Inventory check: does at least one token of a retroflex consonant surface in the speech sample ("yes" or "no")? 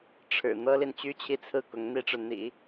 yes